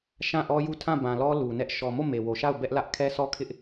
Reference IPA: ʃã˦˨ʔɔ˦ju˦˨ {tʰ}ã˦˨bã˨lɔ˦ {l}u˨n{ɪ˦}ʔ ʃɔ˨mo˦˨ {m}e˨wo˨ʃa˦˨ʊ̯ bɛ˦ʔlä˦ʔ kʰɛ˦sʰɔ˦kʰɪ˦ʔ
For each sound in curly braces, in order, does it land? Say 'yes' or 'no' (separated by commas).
yes, yes, no, yes